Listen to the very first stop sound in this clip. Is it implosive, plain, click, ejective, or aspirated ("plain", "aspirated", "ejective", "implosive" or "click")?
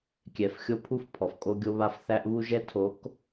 plain